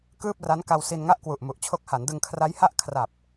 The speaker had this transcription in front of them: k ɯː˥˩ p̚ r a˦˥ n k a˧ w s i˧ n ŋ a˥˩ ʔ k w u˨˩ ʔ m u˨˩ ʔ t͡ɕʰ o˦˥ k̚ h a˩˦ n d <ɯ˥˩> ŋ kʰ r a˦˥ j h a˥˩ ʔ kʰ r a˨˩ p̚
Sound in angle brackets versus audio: incorrect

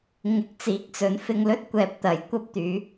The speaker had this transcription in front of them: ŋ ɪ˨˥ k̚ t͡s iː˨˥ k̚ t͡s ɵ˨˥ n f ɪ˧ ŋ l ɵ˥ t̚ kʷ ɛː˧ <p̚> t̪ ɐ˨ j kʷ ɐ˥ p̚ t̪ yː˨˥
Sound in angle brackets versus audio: correct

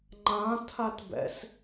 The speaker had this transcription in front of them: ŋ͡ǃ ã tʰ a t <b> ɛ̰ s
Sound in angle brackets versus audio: correct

